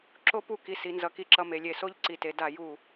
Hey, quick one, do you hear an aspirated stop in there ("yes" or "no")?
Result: no